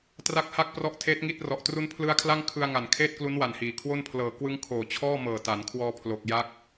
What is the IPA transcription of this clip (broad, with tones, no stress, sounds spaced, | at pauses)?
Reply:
t r a˦˥ k̚ h a˥˩ k̚ p r ɔ˦˥ ʔ tʰ eː˦˥ t̚ ŋ i˥˩ t̚ r ɔ˨˩ ʔ t r u˦˥ n pʰ l ɯ˦˥ a̯ kʰ l a˥˩ ŋ kʰ ɯ˧ a̯ ŋ a˨˩ n kʰ eː˥˩ t̚ k l u˦˥ n w a˨˩ n h iː˩˦ kʰ w o˥˩ n pʰ l ɤː˨˩ k w ɯ˦˥ ŋ kʰ oː˨˩ t͡ɕʰ ɔː˥˩ m ɤː˨˩ t a˩˦ n kʰ w ɔː˧ pʰ l o˨˩ k̚ j a˦˥ k̚